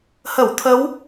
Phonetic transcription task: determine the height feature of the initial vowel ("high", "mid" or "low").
mid